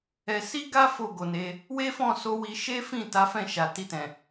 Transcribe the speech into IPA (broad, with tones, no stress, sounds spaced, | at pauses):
ɛ˧ s i˦ ɡ a˦ f o˦˨ ɡ o˨ n e˧ | w e˦ f ɔ̃˦˨ s o˧ w i˧ ʃ e˦ f ĩ˦˨ t a˨˦ f ɛ̃˦˨ ʃ a˨ t i˧ t ɛ̃˨